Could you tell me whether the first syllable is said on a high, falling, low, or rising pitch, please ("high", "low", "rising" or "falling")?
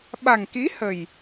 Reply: low